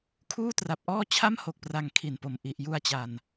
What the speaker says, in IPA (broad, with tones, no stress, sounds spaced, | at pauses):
kʰ uː˥˩ t r a˨˩ p̚ ʔ ɔː˥˩ t͡ɕʰ a˥˩ m h o˨˩ k̚ p r a˨˩ ŋ kʰ i˨˩ n p o˨˩ m ʔ i˨˩ ʔ j u˧ a̯ t͡ɕ a˨˩ n